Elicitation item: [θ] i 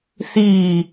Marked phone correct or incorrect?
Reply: correct